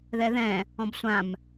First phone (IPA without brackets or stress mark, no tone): ð